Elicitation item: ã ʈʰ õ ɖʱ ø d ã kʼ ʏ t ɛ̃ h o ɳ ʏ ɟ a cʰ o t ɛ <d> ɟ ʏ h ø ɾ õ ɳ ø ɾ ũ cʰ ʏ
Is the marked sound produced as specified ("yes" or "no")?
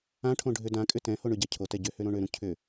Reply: no